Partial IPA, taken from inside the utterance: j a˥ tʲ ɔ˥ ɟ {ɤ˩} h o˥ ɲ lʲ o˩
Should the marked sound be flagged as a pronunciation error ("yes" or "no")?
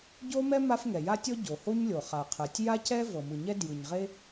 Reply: yes